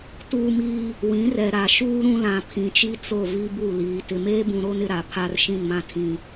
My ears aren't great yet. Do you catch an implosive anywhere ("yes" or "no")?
no